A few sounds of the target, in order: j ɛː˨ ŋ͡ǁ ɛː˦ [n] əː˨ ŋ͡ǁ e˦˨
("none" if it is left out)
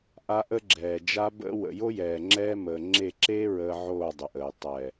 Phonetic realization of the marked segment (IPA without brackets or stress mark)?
m